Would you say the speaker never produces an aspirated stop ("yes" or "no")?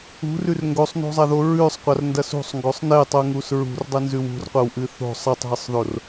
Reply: yes